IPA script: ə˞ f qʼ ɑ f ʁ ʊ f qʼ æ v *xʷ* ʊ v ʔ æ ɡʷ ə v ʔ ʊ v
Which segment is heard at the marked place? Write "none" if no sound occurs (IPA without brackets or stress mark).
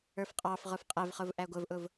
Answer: χ